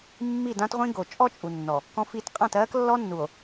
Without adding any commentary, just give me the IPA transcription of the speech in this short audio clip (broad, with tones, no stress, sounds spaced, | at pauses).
mː i˦˨ d ã˦ t ʁʷ ĩ˦ ɡ o˨ t͡ʃʼ ɔ˦ t͡ʃʼ u˨ nː ɔ˨ | k ɔ̃˦ f i˦˨ t qʼ ã˦˨ t ɜː˦ k lː ɔ˦ nː u˨ o̯